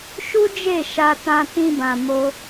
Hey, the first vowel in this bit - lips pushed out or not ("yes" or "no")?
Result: yes